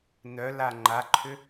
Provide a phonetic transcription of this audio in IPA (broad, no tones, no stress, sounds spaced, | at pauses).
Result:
n œ l a ŋ͡ǃ a ǃʰ ʏ